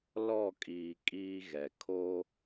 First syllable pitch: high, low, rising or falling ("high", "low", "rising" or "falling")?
falling